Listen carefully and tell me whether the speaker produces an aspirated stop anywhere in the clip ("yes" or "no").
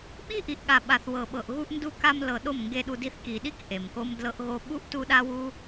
no